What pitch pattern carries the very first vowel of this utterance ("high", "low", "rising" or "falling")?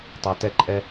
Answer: low